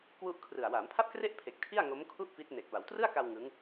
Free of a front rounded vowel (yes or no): yes